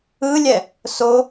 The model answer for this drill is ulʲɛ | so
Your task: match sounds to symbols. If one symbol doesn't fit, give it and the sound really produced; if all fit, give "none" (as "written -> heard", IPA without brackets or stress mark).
u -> ɯ